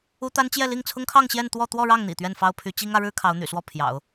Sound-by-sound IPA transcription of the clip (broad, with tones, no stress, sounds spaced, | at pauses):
u˥ t̪ a˥ n t͡ɕ j ɛ˥˧ l i˥˩ ŋ t͡sʰ ʊ˥ ŋ kʰ ɑ˥˧ ŋ ɕ j ɛ˥˧ n t̪ w ɔ˥˧ t̪ w ɔ˥˧ ɻ ɑ˥˩ ŋ n̪ ḭ˨˩ t̪ ɥ ɛ˥˩ n f ɑ˥ ʊ̯ pʰ y˧˥ t͡ɕ i˥ ŋ ä˧˥ ɻ ɻ̩˥ kʰ ɑ˧˥ ʊ̯ n̪ y̰˨˩ s w ɔ˥˩ pʰ j ɑ̰˨˩˦ ʊ̯